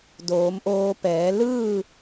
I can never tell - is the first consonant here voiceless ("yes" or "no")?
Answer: no